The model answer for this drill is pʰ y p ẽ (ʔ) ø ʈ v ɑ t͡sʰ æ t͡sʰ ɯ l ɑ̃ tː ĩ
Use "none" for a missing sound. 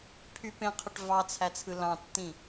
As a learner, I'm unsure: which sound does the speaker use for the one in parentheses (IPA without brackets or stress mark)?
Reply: qʰ